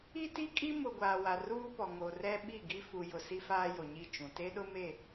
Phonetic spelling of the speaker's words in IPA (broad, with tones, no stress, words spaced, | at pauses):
i˦ti˦kʼi˦ mʊ˨ ɡʷaː˨wa˨ ruː˦pɔ˨ ŋo˨rɛ˦ ɓi˦˨ɡi˦ fu˨jʊ˨ si˦faː˦jo˨ɲi˦˨ t͡ʃũ˨ te˦ɗʊ˦me˦˨